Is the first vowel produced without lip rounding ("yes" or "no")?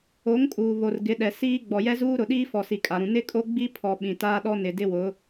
no